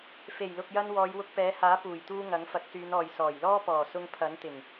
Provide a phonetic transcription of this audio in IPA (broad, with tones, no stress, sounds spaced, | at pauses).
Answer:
f e˨˩ j l ʊ˨ k̚ j ɐ˧ n w ɔː˨˧ j w ʊ˧ k̚ p ɛː˨˥ h aː˨˥ p uː˨˩ j t̪ uː˧ ŋ ɐ˨˥ ŋ f ɐ˨˥ k̚ s yː˨˧ n ɔː˨ j s ɔː˨˩ j l ɔː˥ p ɔː˨˩ s ʊ˧ ŋ pʰ ɐ˨˥ n t̪ ɪ˨˩ ŋ